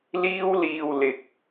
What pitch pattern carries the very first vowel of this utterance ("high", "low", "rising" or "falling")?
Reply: high